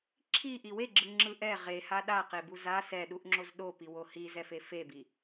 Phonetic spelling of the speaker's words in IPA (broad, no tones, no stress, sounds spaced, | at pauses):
ǁʰ i ʔ i w e ɡ͡ǁ ɯ ŋ͡ǁ ɯ ʔ ɛ ʁ e h a ɗ a q e b u z a s ɛ ɗ u ʔ ŋ͡ǁ o z ɗ o p i w o h i z ɛ f e f e b i